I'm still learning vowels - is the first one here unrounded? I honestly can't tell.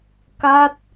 yes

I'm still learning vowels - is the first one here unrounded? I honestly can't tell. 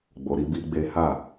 no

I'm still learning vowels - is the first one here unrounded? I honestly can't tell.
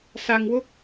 yes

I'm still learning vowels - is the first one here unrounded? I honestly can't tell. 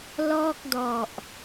no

